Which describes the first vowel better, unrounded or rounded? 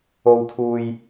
rounded